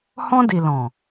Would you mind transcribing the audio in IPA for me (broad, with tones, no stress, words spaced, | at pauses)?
hɔ̃˧di˨ lɔ̃˨